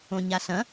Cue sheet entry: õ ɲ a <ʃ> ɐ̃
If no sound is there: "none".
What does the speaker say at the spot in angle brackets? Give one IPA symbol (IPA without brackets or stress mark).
ɬ